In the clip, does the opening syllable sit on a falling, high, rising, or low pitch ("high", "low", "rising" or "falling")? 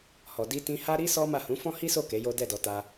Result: low